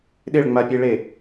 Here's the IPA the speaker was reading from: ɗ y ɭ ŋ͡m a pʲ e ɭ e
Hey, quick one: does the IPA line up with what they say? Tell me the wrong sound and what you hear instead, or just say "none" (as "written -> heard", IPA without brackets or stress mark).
y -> ɪ